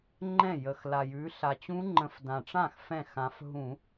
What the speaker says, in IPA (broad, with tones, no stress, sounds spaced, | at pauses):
ŋ͡ǃ ɛ̃˥˩ j ə˨˩ x l a˨˩ j ʉ˨˦ ɬ a˨˩ t͡ɕ ũ˦˥ ŋ͡ǃ ə̃˧˩˧ f d ã˨˩ ʈ͡ʂ ã˥˩ x f ɛ̃˥˩ x ã˨˦ f ɦ ũ˧˩˧